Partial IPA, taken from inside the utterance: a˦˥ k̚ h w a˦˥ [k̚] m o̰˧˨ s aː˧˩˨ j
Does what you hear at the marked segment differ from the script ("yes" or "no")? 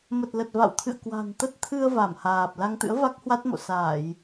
yes